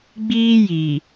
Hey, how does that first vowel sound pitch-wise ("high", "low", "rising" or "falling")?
high